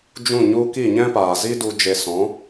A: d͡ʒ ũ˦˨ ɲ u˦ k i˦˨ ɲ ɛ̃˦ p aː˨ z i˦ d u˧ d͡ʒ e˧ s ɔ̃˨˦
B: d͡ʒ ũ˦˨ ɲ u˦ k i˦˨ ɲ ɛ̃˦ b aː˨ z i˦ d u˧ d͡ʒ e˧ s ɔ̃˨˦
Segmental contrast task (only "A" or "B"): A